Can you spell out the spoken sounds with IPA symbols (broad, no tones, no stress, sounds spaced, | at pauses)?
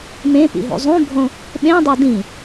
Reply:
m ẽ p ḭ ɦ ṵ zˤ ũ bʱ õ | ɓ ẽ dˤ o d ĩ